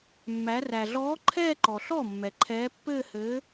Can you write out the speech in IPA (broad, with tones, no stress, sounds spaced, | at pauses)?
mː æ˩˧ r æ˩ ɮ ɔː˨˥ ǃʰ ɛː˥˧ ǃ ɔ˩ ɬ ɔ˥˩ mː ɛ˩ ǃʰ ɛː˨˥ pː ɘː˥˧ h ɘː˨˥